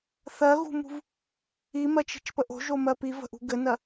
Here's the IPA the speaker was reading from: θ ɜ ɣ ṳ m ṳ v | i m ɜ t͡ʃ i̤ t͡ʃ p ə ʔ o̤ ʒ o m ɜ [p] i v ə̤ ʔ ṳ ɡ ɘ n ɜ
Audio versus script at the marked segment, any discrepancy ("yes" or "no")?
no